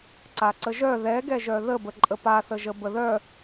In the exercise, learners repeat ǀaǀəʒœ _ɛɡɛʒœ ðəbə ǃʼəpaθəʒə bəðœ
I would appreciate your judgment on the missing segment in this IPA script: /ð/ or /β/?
ð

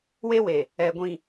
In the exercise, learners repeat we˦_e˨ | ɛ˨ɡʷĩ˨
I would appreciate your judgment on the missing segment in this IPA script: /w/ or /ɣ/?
w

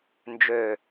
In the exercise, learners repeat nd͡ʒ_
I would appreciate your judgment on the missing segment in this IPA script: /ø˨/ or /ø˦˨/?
ø˨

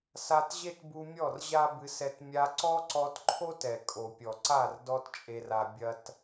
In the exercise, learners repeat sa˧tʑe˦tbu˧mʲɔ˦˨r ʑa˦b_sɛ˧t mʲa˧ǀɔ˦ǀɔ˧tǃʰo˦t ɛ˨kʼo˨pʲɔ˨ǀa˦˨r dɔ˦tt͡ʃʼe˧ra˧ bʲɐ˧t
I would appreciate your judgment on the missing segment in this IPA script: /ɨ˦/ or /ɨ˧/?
ɨ˧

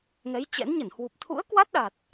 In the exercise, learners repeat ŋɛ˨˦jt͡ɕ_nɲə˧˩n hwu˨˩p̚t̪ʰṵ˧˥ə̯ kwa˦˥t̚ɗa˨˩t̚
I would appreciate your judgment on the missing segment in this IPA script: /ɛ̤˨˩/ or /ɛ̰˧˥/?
ɛ̰˧˥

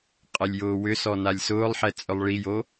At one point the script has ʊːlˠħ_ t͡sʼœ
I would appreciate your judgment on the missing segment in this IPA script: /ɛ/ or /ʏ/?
ɛ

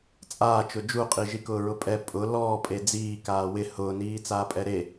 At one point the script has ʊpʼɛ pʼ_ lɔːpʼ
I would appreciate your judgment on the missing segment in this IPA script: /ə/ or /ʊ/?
ʊ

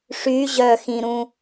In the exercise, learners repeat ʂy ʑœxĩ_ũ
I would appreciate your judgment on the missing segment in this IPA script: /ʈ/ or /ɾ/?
ɾ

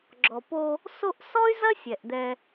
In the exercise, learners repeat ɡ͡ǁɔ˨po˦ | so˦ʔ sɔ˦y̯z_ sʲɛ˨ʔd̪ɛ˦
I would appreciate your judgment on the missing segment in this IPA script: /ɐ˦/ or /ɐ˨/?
ɐ˦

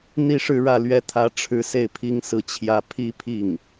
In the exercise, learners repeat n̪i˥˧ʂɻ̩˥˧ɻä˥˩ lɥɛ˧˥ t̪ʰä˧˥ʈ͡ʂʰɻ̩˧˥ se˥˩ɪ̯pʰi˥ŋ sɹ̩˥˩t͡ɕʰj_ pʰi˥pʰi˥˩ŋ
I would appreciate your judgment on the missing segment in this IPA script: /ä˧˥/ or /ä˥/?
ä˥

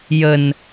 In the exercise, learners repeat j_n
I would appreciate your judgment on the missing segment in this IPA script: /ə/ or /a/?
ə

